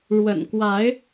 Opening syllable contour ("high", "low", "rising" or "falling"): low